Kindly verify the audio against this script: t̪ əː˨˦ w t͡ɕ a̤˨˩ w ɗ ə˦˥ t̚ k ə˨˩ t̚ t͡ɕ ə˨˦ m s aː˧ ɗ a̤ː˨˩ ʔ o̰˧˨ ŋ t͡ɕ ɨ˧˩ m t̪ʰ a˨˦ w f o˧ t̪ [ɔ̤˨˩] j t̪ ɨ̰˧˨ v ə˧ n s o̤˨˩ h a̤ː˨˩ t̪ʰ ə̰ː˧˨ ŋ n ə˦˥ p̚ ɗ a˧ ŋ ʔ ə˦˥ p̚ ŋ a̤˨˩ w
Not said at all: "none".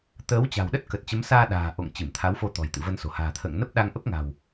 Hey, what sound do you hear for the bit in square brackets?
ɔ̤˨˩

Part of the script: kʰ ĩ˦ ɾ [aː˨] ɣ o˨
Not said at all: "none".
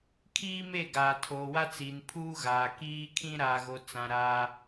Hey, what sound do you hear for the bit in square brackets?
aː˨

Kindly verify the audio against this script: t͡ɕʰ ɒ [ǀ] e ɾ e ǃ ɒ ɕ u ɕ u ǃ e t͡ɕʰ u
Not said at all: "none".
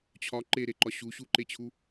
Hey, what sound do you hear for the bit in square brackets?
ǃ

